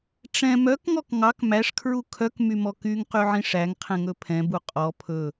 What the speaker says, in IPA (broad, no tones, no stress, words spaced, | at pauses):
ʈ͡ʂɛ̃ mœkŋɔk ŋɑk mæʂkʰɹu kʰœkmymɔ kyŋqyʕĩ ʂæŋqʰɛ̃ŋɵ pʰɛ̃bu qʼɔ pʰɵ